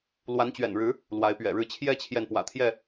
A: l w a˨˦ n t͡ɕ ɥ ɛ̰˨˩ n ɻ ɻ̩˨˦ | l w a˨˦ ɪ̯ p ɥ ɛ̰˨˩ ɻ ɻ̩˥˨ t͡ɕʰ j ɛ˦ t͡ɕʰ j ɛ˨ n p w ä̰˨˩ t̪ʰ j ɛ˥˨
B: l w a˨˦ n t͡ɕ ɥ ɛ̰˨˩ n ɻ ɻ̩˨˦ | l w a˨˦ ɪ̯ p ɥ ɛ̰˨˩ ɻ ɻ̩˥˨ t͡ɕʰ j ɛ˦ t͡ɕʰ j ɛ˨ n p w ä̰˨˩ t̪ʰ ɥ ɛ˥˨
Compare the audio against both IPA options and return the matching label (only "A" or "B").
A